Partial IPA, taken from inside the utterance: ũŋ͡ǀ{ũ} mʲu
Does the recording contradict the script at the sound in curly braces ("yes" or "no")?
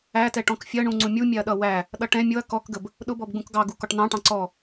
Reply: no